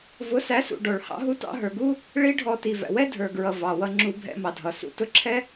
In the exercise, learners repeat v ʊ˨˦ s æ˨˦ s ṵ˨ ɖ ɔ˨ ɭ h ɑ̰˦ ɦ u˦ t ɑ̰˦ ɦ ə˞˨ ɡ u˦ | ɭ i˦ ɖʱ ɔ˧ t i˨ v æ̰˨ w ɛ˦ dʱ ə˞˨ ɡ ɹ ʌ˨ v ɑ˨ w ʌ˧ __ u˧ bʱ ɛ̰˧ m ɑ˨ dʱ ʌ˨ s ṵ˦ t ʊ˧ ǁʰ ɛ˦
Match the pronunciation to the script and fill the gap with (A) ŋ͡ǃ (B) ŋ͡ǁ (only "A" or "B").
B